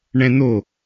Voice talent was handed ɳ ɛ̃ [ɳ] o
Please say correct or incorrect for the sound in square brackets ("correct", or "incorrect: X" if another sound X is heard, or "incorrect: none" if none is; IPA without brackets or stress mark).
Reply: incorrect: n̪